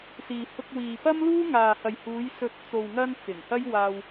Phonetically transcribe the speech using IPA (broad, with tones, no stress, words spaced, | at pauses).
siː˨ hʊ˧k̚wiː˨ pɐ˥mluː˥ ŋaː˨ hɐ˨jhuː˨˧j sɵ˧t̚ t͡so˨wŋɐ˧n t͡sɪ˨˩ŋhɐ˥j waː˧w